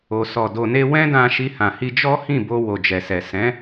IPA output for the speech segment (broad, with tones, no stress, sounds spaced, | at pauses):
o˨ s ɔ˨ d o˨ n e˧ w ɛ̃˦ d ã˧ ʃ i˧ h ã˨ h i˧ d͡ʒ ɔ˦ h ĩ˦˨ b o˧ w o˨ d͡ʒ ɛ˨ s ɛ˨ s ɛ̃˨˦